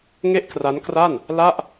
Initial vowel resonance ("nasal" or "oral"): oral